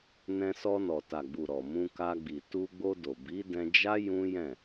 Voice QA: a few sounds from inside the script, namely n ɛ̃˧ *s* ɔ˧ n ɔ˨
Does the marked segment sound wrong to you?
no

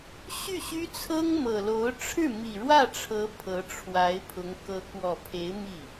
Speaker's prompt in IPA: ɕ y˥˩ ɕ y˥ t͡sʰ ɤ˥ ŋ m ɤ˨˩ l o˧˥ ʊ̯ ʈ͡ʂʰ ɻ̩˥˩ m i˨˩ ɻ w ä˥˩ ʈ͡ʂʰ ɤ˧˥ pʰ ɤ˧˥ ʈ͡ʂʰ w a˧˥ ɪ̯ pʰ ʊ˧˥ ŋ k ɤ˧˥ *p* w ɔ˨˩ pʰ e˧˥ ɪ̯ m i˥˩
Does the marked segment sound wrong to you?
yes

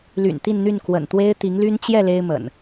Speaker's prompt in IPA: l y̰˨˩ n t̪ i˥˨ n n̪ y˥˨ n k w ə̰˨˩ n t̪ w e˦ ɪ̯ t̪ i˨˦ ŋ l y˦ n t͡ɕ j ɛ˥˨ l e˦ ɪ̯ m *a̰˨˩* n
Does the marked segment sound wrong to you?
yes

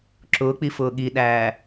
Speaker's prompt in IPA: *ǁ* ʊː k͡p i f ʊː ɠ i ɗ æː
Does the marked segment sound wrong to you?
no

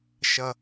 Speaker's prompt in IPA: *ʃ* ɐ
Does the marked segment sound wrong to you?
no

